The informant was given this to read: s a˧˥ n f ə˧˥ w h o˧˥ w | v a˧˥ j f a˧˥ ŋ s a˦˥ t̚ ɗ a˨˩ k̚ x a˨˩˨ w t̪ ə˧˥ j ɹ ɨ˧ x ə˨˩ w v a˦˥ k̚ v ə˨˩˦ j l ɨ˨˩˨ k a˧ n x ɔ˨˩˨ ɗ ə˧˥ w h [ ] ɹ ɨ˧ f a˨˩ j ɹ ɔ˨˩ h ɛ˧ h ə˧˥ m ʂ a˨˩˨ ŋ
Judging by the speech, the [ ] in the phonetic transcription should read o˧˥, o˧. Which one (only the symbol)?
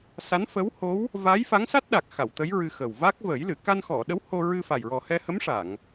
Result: o˧